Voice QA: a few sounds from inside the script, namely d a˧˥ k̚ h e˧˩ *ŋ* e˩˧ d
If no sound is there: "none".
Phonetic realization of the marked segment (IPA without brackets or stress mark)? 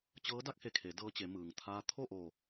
kʰ